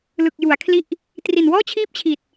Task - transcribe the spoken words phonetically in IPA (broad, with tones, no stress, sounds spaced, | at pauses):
l ɯ˨˩ k̚ j u˩˦ a̯ kʰ l i˥˩ ʔ | t r i˨˩ n w ɔː˥˩ t͡ɕʰ iː˥˩ p̚ t͡ɕʰ i˨˩ t̚